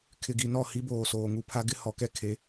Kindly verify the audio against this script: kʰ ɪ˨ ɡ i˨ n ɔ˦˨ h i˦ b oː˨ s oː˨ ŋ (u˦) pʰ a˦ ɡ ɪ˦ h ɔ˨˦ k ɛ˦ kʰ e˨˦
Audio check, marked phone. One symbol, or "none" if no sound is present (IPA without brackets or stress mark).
u˦